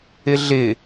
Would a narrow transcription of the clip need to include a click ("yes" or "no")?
no